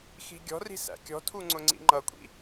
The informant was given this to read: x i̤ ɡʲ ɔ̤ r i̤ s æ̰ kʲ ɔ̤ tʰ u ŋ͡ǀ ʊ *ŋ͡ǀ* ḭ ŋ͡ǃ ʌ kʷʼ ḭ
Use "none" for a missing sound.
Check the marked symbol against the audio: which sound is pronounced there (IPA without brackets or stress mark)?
ŋ͡ǀ